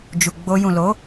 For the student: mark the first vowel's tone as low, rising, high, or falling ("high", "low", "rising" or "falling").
low